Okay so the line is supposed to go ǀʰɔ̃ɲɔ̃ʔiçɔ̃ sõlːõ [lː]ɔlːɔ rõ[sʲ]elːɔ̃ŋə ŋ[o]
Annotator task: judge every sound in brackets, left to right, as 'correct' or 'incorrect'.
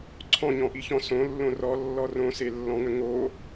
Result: incorrect: r, incorrect: s, correct

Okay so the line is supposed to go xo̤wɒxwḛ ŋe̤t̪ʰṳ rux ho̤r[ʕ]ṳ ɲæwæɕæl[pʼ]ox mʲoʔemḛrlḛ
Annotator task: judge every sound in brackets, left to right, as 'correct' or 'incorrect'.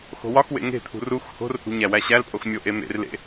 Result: incorrect: h, correct

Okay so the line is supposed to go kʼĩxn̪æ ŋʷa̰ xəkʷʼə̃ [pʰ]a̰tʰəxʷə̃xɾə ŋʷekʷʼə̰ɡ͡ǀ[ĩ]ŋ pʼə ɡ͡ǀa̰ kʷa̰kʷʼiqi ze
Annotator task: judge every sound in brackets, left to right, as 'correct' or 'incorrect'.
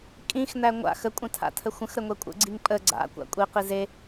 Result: incorrect: tʰ, incorrect: i

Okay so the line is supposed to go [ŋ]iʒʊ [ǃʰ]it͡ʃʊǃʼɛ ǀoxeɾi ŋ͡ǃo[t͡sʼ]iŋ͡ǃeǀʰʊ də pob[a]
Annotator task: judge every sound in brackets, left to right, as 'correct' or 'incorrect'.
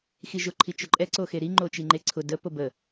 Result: incorrect: x, correct, incorrect: t͡ʃ, incorrect: ə

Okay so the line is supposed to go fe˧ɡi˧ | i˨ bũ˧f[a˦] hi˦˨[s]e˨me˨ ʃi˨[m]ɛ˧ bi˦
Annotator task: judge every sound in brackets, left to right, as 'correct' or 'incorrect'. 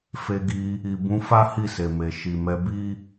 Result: correct, correct, correct

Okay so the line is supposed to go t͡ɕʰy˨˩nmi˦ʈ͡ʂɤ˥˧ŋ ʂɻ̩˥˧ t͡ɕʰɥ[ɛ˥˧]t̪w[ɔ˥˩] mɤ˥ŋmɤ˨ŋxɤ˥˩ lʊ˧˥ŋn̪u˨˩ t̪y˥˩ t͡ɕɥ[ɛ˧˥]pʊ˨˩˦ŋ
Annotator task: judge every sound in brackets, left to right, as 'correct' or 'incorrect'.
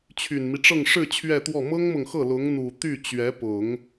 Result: correct, correct, correct

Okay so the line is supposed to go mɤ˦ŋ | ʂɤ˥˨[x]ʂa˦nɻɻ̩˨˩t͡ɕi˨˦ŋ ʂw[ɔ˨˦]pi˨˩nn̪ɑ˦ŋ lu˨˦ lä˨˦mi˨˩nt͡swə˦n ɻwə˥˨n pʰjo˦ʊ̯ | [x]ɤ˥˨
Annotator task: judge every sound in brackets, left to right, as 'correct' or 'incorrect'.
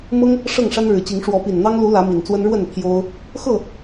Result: incorrect: ŋ, correct, correct

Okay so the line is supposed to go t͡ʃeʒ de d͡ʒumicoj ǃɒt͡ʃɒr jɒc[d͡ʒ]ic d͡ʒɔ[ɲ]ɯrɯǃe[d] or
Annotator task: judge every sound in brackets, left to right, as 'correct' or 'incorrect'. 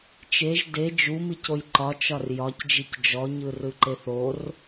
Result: correct, correct, incorrect: θ

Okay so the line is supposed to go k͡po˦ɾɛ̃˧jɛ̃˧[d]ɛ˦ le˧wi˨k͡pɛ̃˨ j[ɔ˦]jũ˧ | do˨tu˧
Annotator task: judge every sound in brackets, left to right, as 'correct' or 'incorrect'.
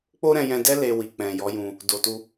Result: correct, incorrect: ɔ˨˦

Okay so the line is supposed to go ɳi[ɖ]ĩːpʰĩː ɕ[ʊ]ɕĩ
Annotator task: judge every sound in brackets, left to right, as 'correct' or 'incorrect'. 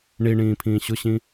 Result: incorrect: ɳ, correct

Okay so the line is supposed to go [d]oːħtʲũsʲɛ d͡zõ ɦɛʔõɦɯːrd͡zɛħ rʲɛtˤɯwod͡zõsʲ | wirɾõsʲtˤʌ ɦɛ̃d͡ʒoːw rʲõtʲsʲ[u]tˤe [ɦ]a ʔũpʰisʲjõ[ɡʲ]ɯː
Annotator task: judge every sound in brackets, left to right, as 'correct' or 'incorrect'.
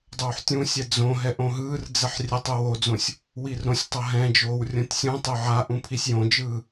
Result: incorrect: dˤ, incorrect: ũ, incorrect: ʕ, incorrect: d͡ʒ

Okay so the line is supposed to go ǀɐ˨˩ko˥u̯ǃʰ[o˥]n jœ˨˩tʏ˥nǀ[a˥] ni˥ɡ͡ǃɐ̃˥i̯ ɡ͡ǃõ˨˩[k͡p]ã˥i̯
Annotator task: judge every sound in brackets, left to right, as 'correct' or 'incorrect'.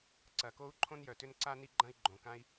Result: incorrect: õ˥, correct, incorrect: k

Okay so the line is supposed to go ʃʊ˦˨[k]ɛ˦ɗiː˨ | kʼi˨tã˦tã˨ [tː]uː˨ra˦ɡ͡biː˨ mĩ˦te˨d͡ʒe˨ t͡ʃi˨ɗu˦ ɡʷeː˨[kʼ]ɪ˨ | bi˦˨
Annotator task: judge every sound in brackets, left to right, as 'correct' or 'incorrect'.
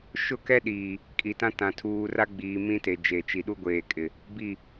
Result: correct, incorrect: tʰ, correct

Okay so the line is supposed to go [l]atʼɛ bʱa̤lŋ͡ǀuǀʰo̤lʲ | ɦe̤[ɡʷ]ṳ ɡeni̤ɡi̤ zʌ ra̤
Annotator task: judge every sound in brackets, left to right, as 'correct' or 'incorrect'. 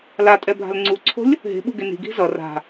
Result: correct, incorrect: ɓ

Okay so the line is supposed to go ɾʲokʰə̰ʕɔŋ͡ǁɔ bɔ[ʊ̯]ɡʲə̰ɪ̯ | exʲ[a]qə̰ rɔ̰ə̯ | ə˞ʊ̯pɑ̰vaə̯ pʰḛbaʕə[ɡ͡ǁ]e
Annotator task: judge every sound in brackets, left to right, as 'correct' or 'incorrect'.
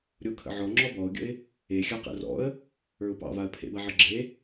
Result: correct, correct, correct

